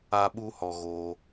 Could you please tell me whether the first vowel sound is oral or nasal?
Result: oral